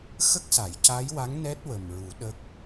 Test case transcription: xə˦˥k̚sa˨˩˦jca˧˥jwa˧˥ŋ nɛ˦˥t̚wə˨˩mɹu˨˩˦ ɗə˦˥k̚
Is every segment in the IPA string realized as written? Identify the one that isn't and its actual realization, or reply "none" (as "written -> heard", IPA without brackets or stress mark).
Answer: none